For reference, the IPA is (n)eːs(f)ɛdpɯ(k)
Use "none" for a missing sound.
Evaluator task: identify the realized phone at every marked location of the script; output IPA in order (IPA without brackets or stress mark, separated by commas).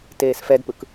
t, f, k